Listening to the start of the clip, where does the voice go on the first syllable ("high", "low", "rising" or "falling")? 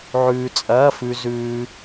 low